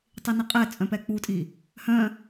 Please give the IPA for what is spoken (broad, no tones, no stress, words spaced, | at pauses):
tˤiniqʼɛt͡sʼœ̃ pɛk͡putʼi | hœ̃